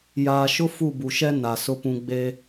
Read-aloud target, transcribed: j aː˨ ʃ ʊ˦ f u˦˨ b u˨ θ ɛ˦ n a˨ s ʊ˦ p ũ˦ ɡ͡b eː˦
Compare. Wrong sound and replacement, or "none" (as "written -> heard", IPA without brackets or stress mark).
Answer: θ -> ʃ